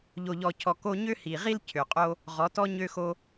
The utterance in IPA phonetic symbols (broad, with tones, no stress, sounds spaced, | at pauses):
ʎ o˨ ʎ ɔ˨ cʰ ɔ˨ k o˧ ɲ ø˦ h i˨ ʁ i˦ l cʰ ø˨ qʼ o˦ | ʁ ɔ˨˦ t ɔ˦ ɲ ø˦ x o˦